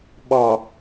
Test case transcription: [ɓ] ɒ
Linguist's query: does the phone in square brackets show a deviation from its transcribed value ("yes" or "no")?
no